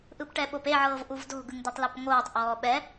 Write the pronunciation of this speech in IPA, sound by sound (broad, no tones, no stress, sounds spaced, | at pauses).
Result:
ʔ ɯ p ʈ ɛ ɓ o p e ʕ ɤː v ʔ u v d o̤ ɡ ɯ ŋ d i tˤ l a p ŋ oː tˤ ʔ ɔː ɓ ɛ